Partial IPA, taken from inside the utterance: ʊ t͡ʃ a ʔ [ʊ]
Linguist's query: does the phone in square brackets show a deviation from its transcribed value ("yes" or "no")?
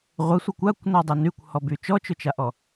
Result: yes